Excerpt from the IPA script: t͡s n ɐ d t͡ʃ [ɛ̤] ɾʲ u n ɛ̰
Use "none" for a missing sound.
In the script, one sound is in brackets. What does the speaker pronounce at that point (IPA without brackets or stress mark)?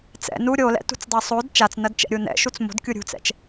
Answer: ɛ̰